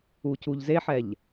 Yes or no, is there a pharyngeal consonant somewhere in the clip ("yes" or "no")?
yes